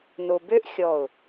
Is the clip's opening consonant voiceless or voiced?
voiced